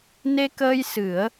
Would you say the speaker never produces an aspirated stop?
yes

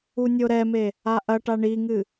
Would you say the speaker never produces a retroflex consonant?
no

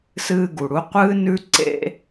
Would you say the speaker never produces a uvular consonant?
no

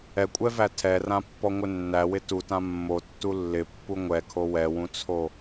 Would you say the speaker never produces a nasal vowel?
no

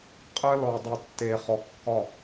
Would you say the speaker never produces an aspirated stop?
yes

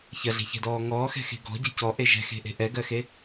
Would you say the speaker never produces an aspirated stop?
yes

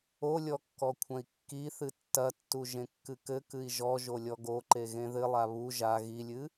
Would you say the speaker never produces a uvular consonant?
yes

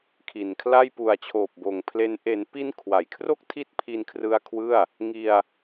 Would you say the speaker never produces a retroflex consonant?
yes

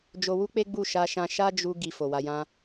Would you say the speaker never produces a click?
yes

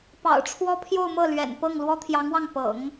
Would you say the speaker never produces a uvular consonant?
yes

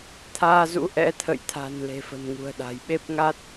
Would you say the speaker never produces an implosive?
no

